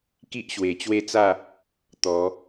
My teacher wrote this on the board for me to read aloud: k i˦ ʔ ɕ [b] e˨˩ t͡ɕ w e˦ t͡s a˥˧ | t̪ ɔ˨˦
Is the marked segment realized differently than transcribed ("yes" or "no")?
yes